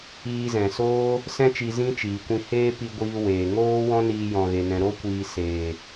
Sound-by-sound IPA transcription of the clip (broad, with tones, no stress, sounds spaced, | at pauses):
iː˧ z ɛ̃˨ s oː˦ | s ɛ̃˦ t͡ʃ i˧ z ĩ˦ t͡ʃ iː˨ kʷ ĩ˧ h eː˦ p i˧ ɡʷ iː˧ w eː˨ ŋ oː˦ w ɔ̃˦ n iː˧ j ɔ̃˨ ɣ e˨ n ɛ̃˨ ɾ o˧ kʷ iː˨ s eː˨